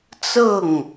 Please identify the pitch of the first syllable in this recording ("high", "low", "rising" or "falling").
falling